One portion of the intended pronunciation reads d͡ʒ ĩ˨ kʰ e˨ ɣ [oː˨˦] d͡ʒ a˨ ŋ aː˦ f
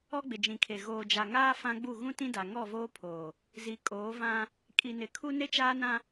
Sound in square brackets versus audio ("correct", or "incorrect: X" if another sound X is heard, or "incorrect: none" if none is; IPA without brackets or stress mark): incorrect: oː˨